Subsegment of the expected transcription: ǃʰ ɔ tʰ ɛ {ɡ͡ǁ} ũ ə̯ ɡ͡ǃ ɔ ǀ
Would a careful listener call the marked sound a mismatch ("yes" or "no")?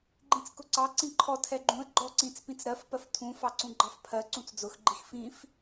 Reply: yes